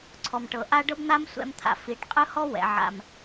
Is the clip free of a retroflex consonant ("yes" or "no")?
no